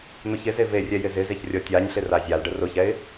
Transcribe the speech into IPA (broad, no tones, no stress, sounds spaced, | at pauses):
n̪ ʊ ç ɪ z e v e rʲ ɛ j ɪ z ɪ z e ç rʲ ɔ tʲ a ɲ ɬ ɪ r a zʲ a l ɖ ə r ʊ ç ɛ ɪ̯